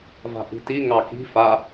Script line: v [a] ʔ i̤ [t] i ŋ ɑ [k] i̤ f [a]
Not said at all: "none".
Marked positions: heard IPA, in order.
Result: a̤, t, k, a

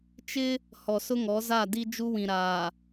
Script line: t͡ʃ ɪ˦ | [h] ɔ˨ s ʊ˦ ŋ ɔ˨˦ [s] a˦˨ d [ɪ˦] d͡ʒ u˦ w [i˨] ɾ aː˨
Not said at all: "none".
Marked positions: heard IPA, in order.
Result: h, z, i˦, ĩ˨

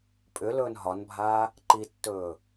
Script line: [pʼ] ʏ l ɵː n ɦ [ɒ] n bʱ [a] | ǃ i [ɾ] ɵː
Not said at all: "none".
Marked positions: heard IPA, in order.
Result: pʼ, ɒ, aː, tː

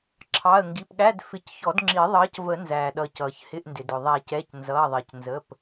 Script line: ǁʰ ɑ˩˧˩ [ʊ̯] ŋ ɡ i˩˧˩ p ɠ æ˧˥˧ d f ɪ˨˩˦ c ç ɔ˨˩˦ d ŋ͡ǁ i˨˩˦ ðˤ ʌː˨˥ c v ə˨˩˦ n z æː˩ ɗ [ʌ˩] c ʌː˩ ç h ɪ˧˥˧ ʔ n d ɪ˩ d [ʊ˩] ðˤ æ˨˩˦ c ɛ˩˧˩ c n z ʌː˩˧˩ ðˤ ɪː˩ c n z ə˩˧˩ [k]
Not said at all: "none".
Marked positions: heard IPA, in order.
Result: ə̯, ʌ˩, ʊ˩, p

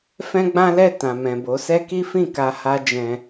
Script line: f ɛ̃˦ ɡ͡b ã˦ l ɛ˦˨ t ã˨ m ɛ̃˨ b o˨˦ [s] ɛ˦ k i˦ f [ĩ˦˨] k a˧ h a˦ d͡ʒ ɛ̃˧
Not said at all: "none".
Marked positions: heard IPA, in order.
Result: s, ĩ˦˨

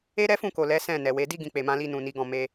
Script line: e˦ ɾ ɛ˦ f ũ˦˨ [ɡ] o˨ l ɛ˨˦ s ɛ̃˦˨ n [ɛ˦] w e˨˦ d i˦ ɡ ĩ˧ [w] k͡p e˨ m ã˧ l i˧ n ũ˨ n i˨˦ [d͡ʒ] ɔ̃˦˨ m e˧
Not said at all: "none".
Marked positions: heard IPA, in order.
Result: k, ɛ˨, none, ɡ

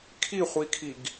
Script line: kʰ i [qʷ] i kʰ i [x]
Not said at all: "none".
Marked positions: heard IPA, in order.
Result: χʷ, ɡ

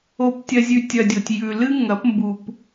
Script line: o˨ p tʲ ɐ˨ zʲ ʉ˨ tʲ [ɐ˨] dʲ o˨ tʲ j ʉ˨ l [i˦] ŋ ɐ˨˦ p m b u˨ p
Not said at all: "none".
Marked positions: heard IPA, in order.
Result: ɐ˨, ɨ˦

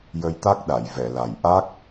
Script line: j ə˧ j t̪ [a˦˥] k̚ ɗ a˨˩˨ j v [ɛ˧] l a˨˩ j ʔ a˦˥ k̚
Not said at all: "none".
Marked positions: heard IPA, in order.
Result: a˦˥, ɛ˨˩˨

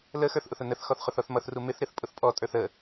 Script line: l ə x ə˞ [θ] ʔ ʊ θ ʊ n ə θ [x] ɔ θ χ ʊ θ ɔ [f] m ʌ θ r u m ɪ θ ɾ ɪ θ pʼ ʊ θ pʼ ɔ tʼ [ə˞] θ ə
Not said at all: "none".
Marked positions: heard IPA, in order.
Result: θ, x, θ, ə˞

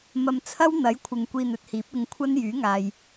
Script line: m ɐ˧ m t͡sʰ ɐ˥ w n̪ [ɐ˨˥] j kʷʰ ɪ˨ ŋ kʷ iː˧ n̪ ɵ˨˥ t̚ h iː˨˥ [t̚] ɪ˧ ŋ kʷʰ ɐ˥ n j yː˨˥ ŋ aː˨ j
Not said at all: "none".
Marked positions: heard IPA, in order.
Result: ɐ˨˥, p̚

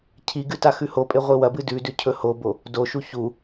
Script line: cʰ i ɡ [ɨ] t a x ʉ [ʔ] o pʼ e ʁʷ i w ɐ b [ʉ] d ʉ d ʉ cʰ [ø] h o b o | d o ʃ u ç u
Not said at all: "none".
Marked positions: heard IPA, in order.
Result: ɨ, h, ɨ, ɵ

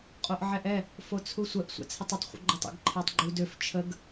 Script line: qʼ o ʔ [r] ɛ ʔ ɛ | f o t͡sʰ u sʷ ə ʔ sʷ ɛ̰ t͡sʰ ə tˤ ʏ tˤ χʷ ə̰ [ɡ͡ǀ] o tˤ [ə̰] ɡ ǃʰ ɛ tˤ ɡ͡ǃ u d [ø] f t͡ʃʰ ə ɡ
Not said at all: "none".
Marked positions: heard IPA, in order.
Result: ʕ, ɡ͡ǃ, ə̰, ø

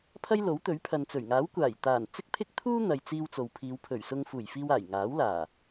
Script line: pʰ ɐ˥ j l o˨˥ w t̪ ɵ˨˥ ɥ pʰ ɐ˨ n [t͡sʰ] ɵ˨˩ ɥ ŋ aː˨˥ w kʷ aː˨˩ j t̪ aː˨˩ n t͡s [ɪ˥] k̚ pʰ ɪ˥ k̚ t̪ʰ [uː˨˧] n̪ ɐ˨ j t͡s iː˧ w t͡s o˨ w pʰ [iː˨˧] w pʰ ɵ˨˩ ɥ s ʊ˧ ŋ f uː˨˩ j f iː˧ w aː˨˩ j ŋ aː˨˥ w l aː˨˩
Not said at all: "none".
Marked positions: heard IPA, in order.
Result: t͡s, ɪ˥, uː˥, iː˨˧

